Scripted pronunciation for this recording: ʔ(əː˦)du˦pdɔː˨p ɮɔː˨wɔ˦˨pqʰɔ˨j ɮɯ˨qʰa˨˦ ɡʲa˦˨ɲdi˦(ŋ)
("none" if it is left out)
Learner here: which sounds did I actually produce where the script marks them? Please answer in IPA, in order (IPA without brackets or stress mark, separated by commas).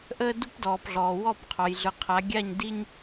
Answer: əː˦, ɲ